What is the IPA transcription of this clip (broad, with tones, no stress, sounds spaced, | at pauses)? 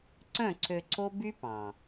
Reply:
ǀ œ̃˦˨ ǀʰ ø˧ ǀʰ o˦ b y˦ p ɑ̃˨